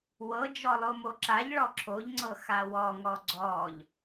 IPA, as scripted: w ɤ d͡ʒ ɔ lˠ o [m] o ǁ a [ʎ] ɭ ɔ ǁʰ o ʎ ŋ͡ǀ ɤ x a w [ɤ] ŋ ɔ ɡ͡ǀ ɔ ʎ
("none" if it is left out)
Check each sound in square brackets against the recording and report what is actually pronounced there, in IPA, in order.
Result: m, ʎ, ɔ

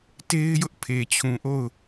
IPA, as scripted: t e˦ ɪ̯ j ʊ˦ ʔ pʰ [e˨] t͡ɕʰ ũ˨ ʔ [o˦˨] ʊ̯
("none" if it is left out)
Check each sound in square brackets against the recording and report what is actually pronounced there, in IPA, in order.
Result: e˨, o˦˨

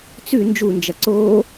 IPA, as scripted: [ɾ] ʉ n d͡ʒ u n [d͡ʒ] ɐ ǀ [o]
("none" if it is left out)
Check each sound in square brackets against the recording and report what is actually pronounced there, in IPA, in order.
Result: t͡s, d͡ʒ, o

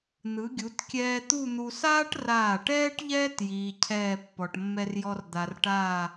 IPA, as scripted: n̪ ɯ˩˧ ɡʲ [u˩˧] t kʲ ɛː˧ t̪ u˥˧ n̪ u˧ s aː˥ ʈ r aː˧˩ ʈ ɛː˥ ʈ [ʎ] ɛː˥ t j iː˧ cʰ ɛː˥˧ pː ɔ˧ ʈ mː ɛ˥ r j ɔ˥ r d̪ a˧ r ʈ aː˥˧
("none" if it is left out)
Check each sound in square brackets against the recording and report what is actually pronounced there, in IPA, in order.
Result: u˩˧, ʎ

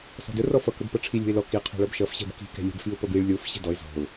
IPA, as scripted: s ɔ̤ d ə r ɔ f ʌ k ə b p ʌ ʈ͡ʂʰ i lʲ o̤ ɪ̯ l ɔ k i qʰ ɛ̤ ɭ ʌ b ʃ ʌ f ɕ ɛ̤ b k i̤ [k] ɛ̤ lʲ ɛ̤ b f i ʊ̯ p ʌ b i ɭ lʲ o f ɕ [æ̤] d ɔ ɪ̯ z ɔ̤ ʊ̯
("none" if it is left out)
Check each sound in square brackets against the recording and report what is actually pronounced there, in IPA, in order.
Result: k, ɛ̤

